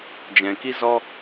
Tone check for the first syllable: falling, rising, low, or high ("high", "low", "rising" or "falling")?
low